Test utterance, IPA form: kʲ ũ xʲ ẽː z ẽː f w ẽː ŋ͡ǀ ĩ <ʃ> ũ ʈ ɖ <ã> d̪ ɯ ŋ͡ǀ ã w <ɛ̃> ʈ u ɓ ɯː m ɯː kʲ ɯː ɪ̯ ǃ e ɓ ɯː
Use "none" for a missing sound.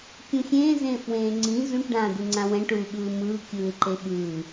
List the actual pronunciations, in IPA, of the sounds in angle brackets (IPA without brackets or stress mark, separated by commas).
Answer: z, ãː, ɛ̃